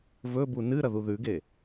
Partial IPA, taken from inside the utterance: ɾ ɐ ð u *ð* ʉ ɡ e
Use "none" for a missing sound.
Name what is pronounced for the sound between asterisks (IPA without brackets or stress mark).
ð